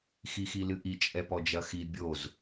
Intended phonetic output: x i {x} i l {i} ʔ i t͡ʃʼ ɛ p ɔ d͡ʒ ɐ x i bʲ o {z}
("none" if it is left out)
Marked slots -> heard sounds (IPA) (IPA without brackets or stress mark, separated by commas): x, ɨ, z